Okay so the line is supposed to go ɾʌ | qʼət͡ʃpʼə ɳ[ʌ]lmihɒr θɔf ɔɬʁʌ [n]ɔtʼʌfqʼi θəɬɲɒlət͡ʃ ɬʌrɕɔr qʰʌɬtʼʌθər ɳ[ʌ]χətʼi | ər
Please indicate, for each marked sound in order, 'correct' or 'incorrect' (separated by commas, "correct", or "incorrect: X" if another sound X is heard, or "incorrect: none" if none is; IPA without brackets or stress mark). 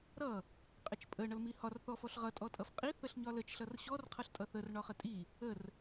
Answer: correct, incorrect: tʼ, incorrect: ɒ